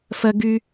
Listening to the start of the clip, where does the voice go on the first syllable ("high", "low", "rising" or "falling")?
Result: high